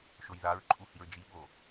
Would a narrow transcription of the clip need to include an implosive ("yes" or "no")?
yes